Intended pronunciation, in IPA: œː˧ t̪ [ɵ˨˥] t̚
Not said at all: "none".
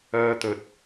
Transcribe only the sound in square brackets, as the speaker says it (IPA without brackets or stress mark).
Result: ɵ˨